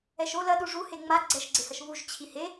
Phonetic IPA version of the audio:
ɛ ʃ o l ɐ ɗ u ʐ u h e ŋ͡m a ɡ͡ǀ ɛ ʃ ɡ͡ǀ e h ɐ ʃ β u ʒ t͡ɕʰ i h e

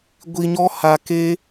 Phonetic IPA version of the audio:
ɡʷ i˧ ɲ ɔ˦ h a˧ k e˦

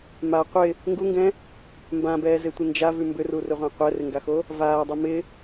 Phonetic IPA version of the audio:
m a qʷ ɪ | ŋ ɡ u ŋ ɡ ɛ̃ | m b ã b ɛː z e tʷ ɪ n d͡ʒ a v ʉ m b ʏ r u r ʏ ʁʷ ã qʷ ɛ r ɪ ŋ ɡ a x o | v aː dˤ u m ɪ

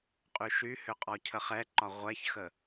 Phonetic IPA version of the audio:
qʼ y ʃ y h ʏ qʼ ɔ cʰ ə χ ɛ ǃ ɒ ʁʷ ɛ ç x ə

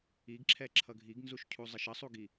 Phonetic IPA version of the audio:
i ɡ ǁʰ ɛ ǁʰ ʌ ɡʱ i ɡ n z u ʃ cʰ u zˤ ə ʃ ə sˤ u ɡ i

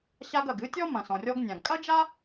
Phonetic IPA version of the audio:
ɕ a˧ ɡ ɐ˩ ɡ ɨ˥ tʲ ɔ˥ m ɐ̃˩ s ɔ̃˩ rʲ ɔ˧ ɡ nʲ ã˩ ɡ kʼ ɐ˥ d͡ʒ a˥

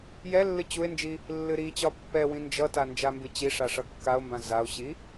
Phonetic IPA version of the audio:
j ɛ lː ɨ t͡ɕ u e̯ n d͡ʒ i | lː ɨ ɾ i t͡ɕ ɒ pː ɛ w ĩ n d͡ʒ ʌ t a n d͡ʒ a m b ɨ t͡ɕ i ʂ a ʂ ʌ kː a o̯ m b ã z a o̯ ɕ i

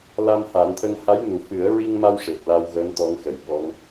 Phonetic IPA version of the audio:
l a˧ m h a˨˩˦ n t̪ʰ ə˧ ŋ h a˧˥ j n u˨˩ f ɨ˨˩˦ ə̯ ɹ i˧ ŋ m a˧ w ʂ e˨˩ t̚ l a˧ w ɣ əː˧˥ n t̪ ɔ˧˥ ŋ x ə˨˩˨ j ɓ ɔ˧˥ ŋ

